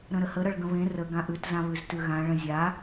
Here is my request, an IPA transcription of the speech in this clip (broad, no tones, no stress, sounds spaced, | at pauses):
ɾ ə̃ ɾ ə h ə ɾ ʌ ɭ ɡ ə̃ β ẽ r ə ɡ ã ʔ ʉ t z ã β ʉ z t ʉ ɣ ã ɭ ə̃ zʲ a